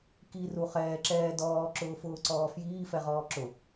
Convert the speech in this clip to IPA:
k i r u χ ɛː ǁ ɛː d ɔː ǁ ʊː f ʊː ǀ ɔː f j iː f ɛ ʁ ɔː ǁ ʊ

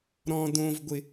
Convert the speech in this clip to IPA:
ɾ ɔ̃ d õ v ɡʷ ɪ

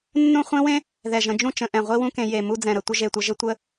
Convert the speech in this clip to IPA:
nː ũ˥˧ χʷ ẽ˥ w ẽ˥ | ð ɛ˧˩ ʒ ə̃˧ d͡ʒ ũ˥ t͡ʃ ə̃˩˧ ʔ ɛ̃˧˩ ʁʷ i˥ w ũ˥ k ẽ˧ j e˧˩ m u˥˧ d͡z ɛ̃˧˩ ɾ ə˧˩ tʷ ə˥ ʒ e˧˩ tʷ ə˧ ʒ ɘ˥ tʷ ə˥

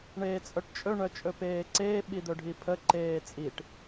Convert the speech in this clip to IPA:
ɳ eː t͡sʼ œ ʈ t͡ʃʼ ɵ ɳ œ t͡ʃʼ ɵ p eː ǀ eː ɓ i d̪ ɵ ɖʱ i pʰ ə ǃ eː t͡sʼ i ʈ

